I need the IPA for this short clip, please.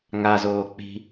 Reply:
ŋ a z oː k͡p i̤

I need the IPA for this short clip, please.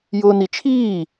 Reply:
j ʊː n i t͡ʃʰ iː

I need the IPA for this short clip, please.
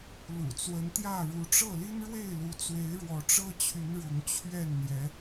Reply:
l ṵ˨˩ t͡s w ə˨˦ n t̪ j ä˥˨ ɻ u˨˦ ʈ͡ʂ ɤ˥˨ l i˦ n ɻ w e˥˨ ɪ̯ l u˨˦ t͡s w e˨˦ ɪ̯ ɻ w ɔ˨˦ ʈ͡ʂ ɤ˦ t͡ɕʰ y˨˦ n ɻ ʊ˨˦ ŋ t͡ɕʰ ɥ ɛ˥˨ n n̪ j ɛ˨˦

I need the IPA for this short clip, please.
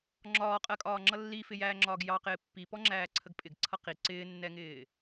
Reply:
ŋ͡ǁ ɒː qʼ ɜ kʼ ɒː ŋ͡ǁ ʌ lː i f ɪ j æː ŋ͡ǁ ɒː ɡ j ɑ q ɪː pː i p ɔ ŋ͡ǁ æː ǀʰ ə ɡ pʼ ɪ ɡ ǀʰ ʌ q i ǀ ɪː nː ɛ ŋ ɪː

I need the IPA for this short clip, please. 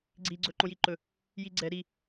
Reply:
ɡ͡ǀ i ɡ͡ǀ ɵ ǃ õ j i ǃ ɵ | j i ɡ͡ǀ ɛ ɾ i

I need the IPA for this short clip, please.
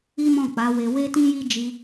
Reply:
i˦ m ɔ̃˦˨ k͡p a˨˦ w e˧ w e˦ t ĩ˦ j i˦ d͡ʒ i˧

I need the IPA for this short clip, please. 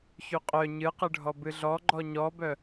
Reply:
ç y qʼ œ ɲ ɨ q ɨ ɖʱ ɔ b ɨ ɮ ɔ ɡ͡ǃ ɔ ɲ ɔ b œ

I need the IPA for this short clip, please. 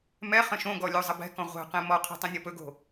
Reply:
m ɛ χ ə̃ ʃ õ ɡ ɔ lʲ o zˤ ə b ɛ̤ k ɔ̃ ʁʷ ɛ̤ q ẽ m ɔ qʰ ɛ̤ tˤ ɛ̃ nʲ ɔ p ɵ ɡ o̤

